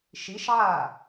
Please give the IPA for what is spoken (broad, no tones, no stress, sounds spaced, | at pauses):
ʃ i ʃ ʕ a